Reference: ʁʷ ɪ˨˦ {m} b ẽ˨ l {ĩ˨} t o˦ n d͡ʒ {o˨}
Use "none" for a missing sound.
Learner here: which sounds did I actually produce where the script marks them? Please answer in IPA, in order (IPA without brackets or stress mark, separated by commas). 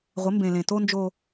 m, ẽ˨, o˦